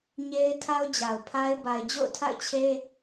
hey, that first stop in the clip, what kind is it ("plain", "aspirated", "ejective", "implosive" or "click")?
aspirated